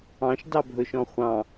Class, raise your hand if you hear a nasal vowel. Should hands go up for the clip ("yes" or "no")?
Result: yes